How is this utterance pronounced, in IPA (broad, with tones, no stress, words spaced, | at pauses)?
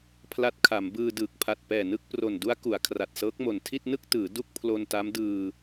pʰla˦˥t̚kʰa˩˦m bɯː˧ dɯː˨˩k̚pʰa˨˩t̚pɛː˨˩nɯ˥˩k̚ pro˨˩ndu˦˥a̯ ku˩˦a̯kʰra˨˩t̚sɤː˦˥k̚mo˨˩n tʰi˥˩t̚nɯ˥˩k̚ tɯː˩˦ du˥˩k̚pʰlo˧nta˦˥m dɯː˧